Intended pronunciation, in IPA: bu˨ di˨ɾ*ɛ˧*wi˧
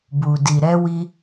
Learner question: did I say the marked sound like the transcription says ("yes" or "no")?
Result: yes